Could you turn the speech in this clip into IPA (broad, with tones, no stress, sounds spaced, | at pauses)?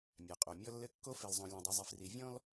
mʲ a˨ qʼ o˨ mʲ ɔ˦ lː ɘ˦ kː o˦ f e˨ l zˤ õ˨ lʲ ɔ̃˨ dˤ ɯ˨ zˤ i˨ f r i˨ vʲ ɔ̃˦ l